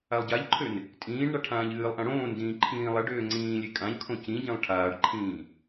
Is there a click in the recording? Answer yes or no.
yes